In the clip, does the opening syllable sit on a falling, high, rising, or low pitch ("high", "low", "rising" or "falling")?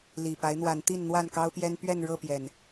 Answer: low